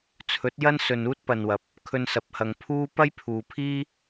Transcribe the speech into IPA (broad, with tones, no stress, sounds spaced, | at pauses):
t͡sʰ ɵ˨˥ t̚ j ɐ˥ n s ɵ˨ n uː˥ t̚ p ɐ˨ n w ɐ˨ p̚ | kʰ ɵ˧ n s ɐ˨ p̚ h ɐ˨ ŋ pʰ uː˥ p ɐ˥ j pʰ uː˨ pʰ iː˥